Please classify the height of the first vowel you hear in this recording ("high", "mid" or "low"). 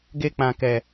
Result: mid